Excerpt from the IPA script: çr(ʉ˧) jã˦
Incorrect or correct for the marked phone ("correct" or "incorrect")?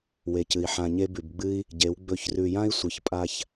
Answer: correct